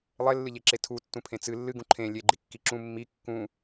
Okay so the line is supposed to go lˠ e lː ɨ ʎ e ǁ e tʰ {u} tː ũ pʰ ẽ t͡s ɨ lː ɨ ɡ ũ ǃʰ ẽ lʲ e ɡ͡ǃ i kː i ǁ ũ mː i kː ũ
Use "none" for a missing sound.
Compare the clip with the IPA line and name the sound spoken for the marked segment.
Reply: u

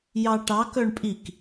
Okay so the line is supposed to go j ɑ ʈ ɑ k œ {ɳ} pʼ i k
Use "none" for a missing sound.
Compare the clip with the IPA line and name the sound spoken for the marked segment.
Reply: ɳ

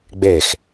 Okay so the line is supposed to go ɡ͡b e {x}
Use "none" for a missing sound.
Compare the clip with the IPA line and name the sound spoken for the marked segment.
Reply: x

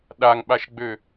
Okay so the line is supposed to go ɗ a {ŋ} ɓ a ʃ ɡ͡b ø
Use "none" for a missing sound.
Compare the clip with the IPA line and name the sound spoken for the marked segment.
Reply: ŋ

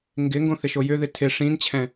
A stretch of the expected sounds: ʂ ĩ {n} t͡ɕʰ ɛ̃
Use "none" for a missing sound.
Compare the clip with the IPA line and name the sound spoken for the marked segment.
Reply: n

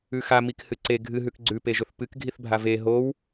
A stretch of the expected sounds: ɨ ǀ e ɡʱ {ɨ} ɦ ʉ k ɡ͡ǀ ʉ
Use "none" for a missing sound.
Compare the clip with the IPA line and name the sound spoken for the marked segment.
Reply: ɨ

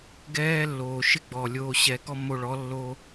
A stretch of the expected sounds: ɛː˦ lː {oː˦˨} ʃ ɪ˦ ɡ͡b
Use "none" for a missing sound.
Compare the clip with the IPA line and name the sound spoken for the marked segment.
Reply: oː˨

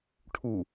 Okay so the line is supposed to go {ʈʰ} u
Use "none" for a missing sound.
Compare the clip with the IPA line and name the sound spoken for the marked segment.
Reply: ʈʰ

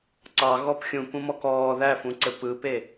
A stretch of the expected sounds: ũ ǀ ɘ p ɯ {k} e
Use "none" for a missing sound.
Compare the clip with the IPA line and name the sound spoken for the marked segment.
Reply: p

